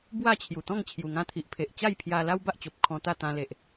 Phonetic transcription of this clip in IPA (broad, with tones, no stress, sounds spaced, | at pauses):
b w a˥˧ t͡ɕʰ j u˨˩ t̪ ɔ̃˥˧ ŋ t͡ɕʰ j u˨˩ ŋ ã˦ t̪ʰ i˨ ʔ pʰ e˨ ʔ t͡ɕ a˥˧ j pʰ j a˧ l a˦ w b a˦ ʔ t͡ɕ o˨ p̚ kʰ ɔ̃˧ t̪ a˥˧ t̪ ã˧ l e˨ ʔ